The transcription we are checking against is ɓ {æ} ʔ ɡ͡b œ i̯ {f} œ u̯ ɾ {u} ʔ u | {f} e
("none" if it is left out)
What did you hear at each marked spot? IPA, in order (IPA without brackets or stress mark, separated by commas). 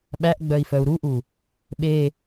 æ, f, u, ɓ